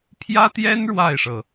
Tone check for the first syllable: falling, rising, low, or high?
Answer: high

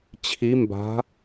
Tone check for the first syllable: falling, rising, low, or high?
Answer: rising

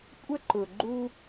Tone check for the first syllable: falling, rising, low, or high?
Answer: high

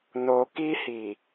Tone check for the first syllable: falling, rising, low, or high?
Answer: low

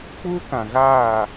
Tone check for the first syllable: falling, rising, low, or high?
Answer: high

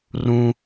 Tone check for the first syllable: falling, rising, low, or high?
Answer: low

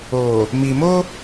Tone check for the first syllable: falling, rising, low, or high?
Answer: low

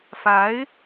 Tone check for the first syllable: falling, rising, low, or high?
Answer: rising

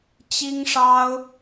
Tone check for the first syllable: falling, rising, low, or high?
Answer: high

